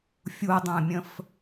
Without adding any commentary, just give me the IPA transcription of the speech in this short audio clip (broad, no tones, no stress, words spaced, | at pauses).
fʲudˤə̃ːmʲə̃f